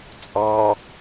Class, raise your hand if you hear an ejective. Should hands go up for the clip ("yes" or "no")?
yes